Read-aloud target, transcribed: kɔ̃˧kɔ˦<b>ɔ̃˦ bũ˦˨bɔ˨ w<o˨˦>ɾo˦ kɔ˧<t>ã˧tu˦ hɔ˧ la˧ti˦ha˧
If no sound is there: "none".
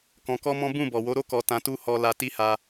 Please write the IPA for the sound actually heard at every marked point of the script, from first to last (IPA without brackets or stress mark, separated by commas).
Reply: m, o˨˦, t